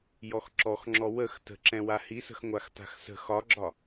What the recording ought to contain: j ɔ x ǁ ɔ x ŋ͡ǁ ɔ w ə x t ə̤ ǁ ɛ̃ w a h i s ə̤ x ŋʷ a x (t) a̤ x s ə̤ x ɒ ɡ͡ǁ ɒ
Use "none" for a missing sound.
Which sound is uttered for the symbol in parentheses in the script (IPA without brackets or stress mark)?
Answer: t